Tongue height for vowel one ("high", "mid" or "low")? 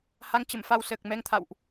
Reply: low